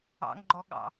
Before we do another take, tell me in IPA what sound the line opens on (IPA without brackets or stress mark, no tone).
ɑ̰